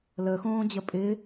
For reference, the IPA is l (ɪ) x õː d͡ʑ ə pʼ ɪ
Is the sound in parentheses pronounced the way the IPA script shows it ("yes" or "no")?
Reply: no